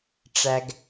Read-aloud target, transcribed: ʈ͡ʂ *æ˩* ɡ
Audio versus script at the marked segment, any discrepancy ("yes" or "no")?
no